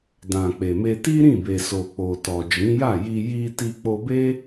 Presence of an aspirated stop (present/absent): absent